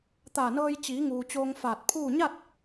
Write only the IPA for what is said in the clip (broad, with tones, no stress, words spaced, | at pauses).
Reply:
t̪aː˧˩nɤː˧j t͡ɕiː˩˧ŋuː˩ t͡ɕoː˧ŋfaː˧˩t̚pʰuː˥˨ ɲa˥˨t̚